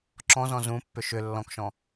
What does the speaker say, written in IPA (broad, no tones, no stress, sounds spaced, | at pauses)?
ǁ ɔ̃ z ɔ̃ z ũ pː ʏ ʃ ʏ lː ɔ̃ k ʃ ɔ̃